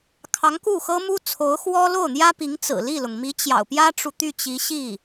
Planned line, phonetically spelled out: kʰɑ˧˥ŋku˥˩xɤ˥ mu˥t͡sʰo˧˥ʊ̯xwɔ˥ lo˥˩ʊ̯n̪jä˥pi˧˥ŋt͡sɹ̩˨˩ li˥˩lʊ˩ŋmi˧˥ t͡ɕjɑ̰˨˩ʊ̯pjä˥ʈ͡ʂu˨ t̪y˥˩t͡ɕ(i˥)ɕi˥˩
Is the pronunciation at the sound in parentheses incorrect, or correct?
incorrect